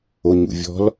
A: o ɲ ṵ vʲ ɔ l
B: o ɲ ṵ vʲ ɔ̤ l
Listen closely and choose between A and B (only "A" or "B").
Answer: B